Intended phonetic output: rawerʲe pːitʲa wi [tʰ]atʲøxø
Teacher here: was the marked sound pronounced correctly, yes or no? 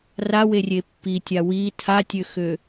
yes